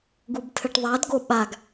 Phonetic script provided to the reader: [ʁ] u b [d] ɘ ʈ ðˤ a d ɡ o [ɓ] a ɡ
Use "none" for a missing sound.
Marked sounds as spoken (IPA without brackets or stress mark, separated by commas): ɡ, tʰ, ɓ